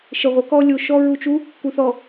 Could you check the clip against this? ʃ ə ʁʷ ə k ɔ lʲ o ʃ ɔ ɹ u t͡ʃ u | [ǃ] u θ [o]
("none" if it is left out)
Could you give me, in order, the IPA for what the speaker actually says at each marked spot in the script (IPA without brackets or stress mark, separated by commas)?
k, ɔ